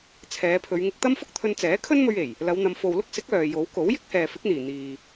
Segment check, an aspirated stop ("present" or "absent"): present